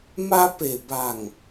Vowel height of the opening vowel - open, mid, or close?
open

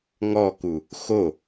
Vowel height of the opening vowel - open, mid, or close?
mid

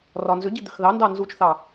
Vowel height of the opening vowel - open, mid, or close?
open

